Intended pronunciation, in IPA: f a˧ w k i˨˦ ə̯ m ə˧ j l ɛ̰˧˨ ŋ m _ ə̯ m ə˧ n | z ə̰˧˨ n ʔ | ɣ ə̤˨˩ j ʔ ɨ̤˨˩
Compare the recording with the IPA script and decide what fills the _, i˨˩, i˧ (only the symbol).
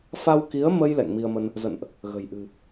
i˧